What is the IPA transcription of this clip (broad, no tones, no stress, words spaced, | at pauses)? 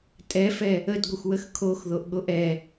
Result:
tʼɛfɛ | ədɡʷəxʷwəx kʰoxðoʔɠoʔ ɛ